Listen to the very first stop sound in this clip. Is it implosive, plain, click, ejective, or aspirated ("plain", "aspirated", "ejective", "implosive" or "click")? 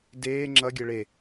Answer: plain